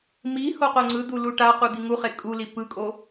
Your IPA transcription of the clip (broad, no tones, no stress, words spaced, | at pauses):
mi hoqoŋ͡ǀɯd̪u luʈaqu d̪iŋuχe kʼuli pɯkʼo